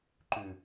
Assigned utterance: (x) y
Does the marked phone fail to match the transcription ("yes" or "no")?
yes